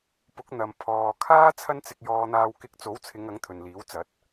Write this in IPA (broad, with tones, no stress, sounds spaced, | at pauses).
p ʊ˨˥ k̚ n̪ ɐ˨ m pʰ ɔː˨ kʰ aː˥ t͡sʰ ɐ˥ n t͡s ɪ˧ k̚ j ɔː˧ n̪ aː˧ w k ɪ˧ k̚ t͡s o˨˥ w t͡sʰ ɪ˨˧ ŋ ɐ˨˥ ŋ t̪ʰ ɵ˨ n l iː˨˥ w t͡s ɐ˨˥ t̚